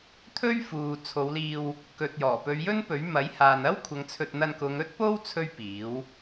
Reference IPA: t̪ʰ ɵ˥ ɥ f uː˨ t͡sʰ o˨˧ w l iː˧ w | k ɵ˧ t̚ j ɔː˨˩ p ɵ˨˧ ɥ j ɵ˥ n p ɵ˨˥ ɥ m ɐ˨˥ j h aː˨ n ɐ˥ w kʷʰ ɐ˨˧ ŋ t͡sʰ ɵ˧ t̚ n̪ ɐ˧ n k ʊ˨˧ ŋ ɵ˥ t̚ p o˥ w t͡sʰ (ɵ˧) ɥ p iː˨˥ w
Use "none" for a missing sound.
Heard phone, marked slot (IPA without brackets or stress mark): ɵ˥